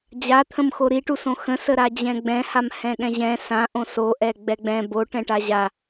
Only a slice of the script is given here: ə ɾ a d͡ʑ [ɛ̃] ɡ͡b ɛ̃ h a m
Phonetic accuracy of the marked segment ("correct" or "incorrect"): correct